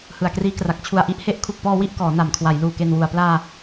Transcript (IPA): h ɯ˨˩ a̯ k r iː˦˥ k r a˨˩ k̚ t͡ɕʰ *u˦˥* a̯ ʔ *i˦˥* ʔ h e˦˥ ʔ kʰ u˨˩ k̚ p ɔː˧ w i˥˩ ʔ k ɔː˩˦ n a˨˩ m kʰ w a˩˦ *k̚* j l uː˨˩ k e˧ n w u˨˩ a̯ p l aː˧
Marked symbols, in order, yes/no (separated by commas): no, yes, no